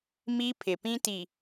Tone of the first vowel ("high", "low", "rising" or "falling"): high